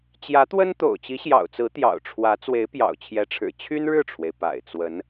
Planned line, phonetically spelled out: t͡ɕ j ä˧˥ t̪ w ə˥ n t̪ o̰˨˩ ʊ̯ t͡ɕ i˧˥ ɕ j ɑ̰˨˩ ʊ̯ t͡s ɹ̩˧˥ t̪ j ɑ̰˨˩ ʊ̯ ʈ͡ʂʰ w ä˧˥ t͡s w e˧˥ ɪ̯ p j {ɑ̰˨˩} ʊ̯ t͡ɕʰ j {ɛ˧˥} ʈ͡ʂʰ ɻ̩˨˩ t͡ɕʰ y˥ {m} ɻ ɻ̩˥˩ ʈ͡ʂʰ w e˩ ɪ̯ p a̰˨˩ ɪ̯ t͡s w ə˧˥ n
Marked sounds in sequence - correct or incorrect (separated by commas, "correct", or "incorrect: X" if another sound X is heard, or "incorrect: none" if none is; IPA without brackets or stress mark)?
correct, correct, incorrect: n